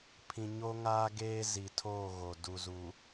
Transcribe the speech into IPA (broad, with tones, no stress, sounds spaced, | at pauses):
pʰ ĩ˨ ɲ o˦ ŋ aː˦ ɡ eː˦ z i˨ tʰ oː˦˨ ɣ o˨ d u˨ z u˨